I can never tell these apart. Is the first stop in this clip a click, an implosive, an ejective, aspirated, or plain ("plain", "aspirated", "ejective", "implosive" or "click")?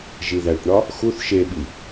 plain